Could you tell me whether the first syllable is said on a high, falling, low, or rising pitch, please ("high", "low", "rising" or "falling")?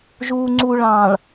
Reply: low